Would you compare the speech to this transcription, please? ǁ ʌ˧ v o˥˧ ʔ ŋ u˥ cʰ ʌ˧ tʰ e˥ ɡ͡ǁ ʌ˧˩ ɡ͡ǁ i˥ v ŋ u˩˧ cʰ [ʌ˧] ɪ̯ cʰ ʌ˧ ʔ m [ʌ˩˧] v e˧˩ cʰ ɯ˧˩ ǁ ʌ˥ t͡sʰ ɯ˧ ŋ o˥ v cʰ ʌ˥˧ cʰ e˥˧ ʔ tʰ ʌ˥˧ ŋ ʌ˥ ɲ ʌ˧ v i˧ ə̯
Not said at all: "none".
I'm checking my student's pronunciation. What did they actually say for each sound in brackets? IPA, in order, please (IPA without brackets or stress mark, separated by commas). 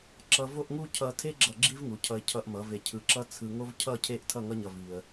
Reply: ʌ˧, ʌ˩˧